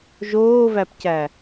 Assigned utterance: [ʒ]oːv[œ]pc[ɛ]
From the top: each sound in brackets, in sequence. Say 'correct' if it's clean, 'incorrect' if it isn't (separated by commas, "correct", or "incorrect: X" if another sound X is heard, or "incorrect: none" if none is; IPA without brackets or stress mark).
correct, incorrect: æ, incorrect: æ